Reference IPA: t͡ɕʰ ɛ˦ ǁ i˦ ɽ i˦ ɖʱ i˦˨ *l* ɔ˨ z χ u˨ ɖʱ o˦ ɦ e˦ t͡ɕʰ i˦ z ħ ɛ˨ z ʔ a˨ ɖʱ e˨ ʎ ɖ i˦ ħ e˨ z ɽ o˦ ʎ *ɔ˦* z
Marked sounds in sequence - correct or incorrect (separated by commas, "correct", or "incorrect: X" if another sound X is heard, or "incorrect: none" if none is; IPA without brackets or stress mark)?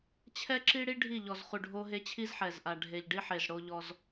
incorrect: ʎ, correct